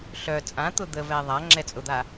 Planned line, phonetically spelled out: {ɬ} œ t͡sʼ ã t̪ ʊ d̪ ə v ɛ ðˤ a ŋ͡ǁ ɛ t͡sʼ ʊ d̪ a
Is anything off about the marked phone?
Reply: no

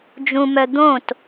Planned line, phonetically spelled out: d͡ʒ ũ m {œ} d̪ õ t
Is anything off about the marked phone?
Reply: no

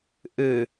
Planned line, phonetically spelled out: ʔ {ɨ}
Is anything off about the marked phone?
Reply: no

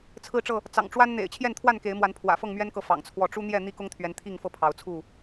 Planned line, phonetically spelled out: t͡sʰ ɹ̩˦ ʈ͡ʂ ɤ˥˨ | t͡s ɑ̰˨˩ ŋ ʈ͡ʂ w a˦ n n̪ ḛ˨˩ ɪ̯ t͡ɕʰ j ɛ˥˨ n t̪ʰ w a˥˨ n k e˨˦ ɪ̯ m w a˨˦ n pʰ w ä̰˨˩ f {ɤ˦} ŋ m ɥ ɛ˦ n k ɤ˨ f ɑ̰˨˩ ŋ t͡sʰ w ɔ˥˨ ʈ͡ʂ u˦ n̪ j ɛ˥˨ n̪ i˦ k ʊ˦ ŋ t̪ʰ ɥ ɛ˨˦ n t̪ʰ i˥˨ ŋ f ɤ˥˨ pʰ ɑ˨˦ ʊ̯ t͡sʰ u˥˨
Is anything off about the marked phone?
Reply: yes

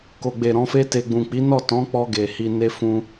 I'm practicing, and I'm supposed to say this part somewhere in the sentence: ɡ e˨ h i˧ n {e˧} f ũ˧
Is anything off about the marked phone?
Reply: no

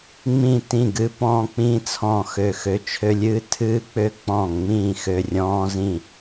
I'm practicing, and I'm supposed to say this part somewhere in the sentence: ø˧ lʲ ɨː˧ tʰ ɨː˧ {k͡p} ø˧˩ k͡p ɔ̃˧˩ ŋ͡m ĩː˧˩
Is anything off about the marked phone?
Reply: no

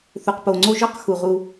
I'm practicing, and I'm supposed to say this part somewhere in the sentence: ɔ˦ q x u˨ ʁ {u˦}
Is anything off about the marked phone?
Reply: no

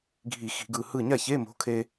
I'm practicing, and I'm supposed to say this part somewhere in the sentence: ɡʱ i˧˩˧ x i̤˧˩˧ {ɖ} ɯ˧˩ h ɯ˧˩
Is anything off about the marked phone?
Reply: yes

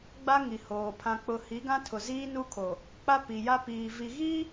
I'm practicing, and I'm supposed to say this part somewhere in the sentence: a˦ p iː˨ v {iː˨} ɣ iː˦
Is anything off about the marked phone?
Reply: yes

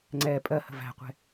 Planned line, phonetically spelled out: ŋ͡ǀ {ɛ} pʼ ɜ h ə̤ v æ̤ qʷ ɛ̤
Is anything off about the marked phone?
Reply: no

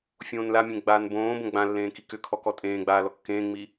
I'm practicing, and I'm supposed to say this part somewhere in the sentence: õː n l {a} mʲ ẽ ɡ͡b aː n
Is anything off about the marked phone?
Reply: no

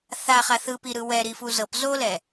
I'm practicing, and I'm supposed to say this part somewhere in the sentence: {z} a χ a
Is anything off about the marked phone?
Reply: yes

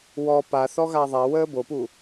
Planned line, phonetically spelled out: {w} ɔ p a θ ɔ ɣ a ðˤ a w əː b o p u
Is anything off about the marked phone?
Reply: no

